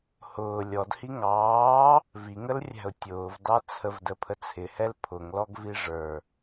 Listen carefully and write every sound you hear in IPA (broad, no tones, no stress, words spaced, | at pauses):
hʊː lʲɔd hiŋɑː | viŋəlrʲæ̤ʊ̯ tʲʊːvdɑ t͡sʰəvdəpʰə t͡sʰɪhɛl pʰʊŋlɔɡvi ʐə˞